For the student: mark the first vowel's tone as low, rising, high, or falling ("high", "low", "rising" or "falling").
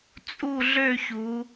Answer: falling